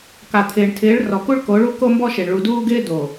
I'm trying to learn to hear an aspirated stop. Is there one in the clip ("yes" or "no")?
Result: yes